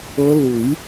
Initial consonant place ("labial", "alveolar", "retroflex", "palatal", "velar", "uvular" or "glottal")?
alveolar